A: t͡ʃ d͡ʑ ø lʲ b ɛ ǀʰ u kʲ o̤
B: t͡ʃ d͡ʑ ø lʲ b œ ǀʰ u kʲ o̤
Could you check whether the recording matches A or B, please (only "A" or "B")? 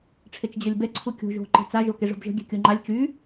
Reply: A